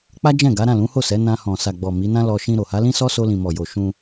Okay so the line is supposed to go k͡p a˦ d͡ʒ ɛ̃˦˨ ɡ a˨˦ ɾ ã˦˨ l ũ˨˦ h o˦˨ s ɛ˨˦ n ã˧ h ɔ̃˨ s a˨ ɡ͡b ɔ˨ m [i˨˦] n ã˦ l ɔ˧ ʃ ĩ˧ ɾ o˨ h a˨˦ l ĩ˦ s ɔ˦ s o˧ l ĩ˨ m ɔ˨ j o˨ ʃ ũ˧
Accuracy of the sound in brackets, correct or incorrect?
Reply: correct